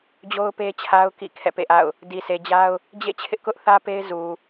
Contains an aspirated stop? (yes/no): yes